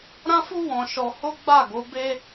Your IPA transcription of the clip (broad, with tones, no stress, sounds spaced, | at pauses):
ɾ ã˦ f u˦ w ɔ̃˧ ʃ ɔ˧ h o˦ ɡ͡b a˦˨ ɡ o˨˦ b e˦